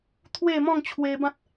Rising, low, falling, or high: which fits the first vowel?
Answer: falling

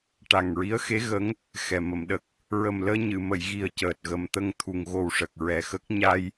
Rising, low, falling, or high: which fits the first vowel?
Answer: low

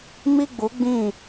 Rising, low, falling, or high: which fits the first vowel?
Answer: high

